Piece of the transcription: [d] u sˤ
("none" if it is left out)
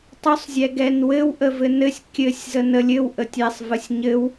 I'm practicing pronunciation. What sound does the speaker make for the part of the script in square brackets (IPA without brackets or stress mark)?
tˤ